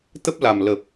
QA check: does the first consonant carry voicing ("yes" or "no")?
no